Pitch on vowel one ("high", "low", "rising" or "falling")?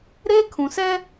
high